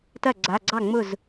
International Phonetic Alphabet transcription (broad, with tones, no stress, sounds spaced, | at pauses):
t ɐ˥˩ ɡ͡ǀ a˩˧˩ ɡ͡ǀ ɑ˥˩ ŋ͡m ʊ˥˩ z